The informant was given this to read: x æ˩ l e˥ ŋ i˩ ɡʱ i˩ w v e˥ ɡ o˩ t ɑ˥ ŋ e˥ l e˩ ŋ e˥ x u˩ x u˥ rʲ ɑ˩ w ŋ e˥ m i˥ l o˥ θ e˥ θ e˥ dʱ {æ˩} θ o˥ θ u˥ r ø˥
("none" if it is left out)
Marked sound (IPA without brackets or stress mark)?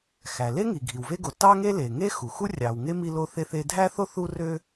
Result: æ˥